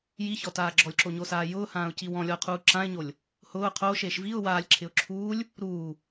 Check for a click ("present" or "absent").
present